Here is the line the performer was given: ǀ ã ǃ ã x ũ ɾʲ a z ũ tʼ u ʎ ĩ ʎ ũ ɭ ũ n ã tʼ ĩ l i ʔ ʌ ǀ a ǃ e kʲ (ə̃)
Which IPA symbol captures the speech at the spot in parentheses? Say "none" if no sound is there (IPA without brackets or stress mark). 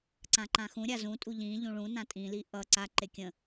ə̃